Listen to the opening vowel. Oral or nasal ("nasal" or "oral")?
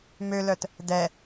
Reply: oral